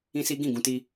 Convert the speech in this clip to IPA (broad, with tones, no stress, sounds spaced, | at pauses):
ĩ˦ s i˦ ɡ ĩ˦˨ ɡ ũ˧ t i˧